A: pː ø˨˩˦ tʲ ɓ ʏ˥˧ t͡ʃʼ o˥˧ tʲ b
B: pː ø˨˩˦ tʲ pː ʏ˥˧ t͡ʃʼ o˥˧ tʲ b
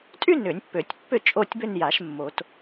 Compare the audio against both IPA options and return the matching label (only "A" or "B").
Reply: B